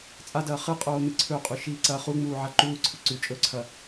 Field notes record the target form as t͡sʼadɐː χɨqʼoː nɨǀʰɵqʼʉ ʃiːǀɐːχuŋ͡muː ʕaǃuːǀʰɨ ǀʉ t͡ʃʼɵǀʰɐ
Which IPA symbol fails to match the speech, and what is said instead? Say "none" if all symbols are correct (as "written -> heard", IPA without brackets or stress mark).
none